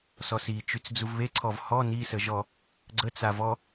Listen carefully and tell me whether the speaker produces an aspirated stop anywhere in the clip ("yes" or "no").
yes